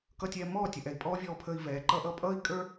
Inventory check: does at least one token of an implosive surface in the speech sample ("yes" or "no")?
no